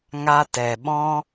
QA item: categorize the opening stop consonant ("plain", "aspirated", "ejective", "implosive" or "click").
plain